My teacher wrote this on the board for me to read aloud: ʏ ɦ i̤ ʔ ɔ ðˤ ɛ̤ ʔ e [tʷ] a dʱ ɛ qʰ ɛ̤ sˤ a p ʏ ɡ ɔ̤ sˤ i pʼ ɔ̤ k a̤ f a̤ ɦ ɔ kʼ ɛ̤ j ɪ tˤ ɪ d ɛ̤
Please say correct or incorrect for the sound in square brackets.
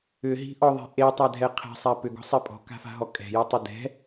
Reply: incorrect